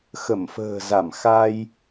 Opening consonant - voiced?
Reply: no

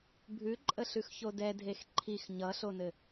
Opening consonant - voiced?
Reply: yes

